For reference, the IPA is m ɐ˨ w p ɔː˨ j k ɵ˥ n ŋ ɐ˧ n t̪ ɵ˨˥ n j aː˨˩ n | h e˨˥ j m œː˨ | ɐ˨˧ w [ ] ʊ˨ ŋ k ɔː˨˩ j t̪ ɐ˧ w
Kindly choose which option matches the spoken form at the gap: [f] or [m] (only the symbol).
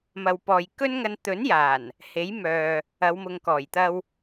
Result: m